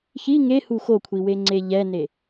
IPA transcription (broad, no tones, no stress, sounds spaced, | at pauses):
ç i ŋ e h u x o kʷʰ i w e ŋ͡ǀ e ʎ ɛ n e